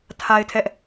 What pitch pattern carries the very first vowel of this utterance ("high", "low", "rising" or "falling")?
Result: high